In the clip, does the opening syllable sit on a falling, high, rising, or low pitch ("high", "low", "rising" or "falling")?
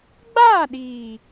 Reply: falling